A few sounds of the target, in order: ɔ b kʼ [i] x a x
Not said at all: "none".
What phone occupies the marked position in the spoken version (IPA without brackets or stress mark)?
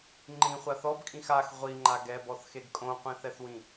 ĩ